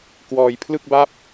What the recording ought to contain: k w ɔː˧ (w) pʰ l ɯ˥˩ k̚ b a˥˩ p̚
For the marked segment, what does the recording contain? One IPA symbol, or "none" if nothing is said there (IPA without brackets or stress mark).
j